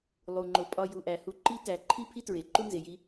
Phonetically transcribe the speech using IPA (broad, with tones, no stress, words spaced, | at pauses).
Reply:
lˠu˩ŋ͡ǃo˩ pʼɒ˨ ju˩ʔæ˩hu˨ ǃi˥tæ˨ ǃʰi˥ pʰi˥tɹe˩ǃu˥ nze˨ji˥